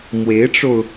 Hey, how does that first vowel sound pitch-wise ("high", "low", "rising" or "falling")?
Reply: rising